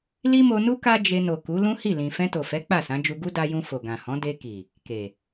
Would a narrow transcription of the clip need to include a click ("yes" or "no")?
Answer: no